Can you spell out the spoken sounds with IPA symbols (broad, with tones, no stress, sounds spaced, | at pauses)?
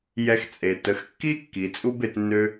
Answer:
j ɛ˧ x t͡sʼ e˨ t ə˨˦ x kː i˦ kː i˨ t͡sʼ u˦ b e˧ t nː ø˦